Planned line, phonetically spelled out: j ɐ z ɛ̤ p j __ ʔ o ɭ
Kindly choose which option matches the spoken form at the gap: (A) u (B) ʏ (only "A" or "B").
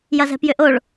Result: B